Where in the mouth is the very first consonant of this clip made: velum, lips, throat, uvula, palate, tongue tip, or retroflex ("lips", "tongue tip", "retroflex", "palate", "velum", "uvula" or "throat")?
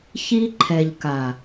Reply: palate